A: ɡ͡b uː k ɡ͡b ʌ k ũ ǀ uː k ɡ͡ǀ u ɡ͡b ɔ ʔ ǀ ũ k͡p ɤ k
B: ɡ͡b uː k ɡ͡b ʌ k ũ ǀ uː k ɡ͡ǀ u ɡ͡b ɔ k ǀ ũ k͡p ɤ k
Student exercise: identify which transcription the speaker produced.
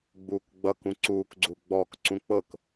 B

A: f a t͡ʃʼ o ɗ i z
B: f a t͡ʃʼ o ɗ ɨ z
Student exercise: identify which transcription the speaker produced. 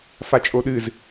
B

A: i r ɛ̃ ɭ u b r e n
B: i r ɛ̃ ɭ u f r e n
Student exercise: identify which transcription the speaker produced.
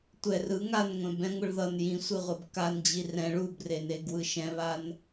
A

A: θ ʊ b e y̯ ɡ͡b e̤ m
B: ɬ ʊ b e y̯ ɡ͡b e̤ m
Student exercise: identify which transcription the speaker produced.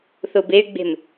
A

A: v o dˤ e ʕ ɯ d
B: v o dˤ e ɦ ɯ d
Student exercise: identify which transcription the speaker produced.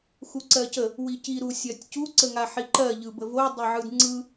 A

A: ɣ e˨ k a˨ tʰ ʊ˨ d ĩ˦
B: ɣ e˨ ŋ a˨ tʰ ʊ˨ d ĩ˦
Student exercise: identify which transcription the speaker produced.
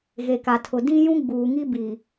A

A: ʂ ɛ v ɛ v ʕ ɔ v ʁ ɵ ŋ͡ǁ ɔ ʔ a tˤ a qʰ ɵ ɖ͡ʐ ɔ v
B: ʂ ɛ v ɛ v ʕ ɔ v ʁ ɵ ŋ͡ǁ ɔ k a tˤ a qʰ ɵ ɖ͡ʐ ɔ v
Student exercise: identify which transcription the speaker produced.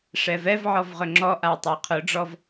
A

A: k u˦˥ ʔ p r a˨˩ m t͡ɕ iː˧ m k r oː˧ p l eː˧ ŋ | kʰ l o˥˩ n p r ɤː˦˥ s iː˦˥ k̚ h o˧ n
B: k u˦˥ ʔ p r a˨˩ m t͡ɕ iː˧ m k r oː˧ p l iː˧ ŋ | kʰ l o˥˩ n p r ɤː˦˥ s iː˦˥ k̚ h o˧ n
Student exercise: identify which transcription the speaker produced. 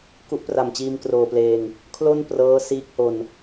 A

